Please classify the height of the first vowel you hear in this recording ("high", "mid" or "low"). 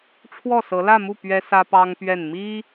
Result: mid